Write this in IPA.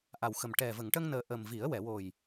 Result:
ʔa˨˩wxə˨˩m ʈɛ˨˩ və˨˩˨ŋʈə˧ŋnəː˨˩ ʔə˨˩mvi˨˩˦ə̯ wɛ˨˩˨wo˨˩j

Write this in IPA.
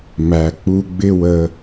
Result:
mæ˨k͡pu˧ɡ͡bɪ˦ wə˧

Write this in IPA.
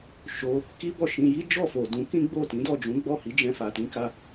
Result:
ʃo˧ | ki˦bɔ˦˨ʃĩ˧ ji˦d͡ʒɔ˦˨ fo˨dũ˨˦kĩ˦ ɡ͡bo˦˨tĩ˨˦dɔ˦˨d͡ʒũ˨˦ ɡ͡bɔ˦˨hi˨˦d͡ʒɛ̃˧ fa˨ tĩ˧ka˧

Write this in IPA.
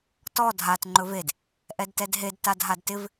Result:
tɔ dʱat ŋ͡ǃɵved | ʔɛdtɛdɦed tadɦadtɪv

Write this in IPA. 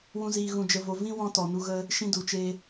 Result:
wũ˦ziː˧ ɣũ˧d͡ʒə˧vo˧ vĩ˦wɔ̃˧ tɔ˨nu˧ ɣə˧ | ʃĩ˧du˨t͡ʃe˧

